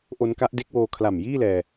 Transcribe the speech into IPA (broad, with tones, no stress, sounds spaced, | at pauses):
ʔ o˦˥ n k a˦˥ ʔ d e˦˥ k̚ w oː˧ kʰ l a˨˩ m j iː˥˩ l ɛː˧